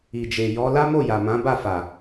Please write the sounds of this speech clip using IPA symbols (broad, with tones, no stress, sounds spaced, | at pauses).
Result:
i˨ d͡ʒ e˨ j ɔ˨˦ l a˦ m o˦˨ j a˨ m ã˨˦ b a˦˨ f a˨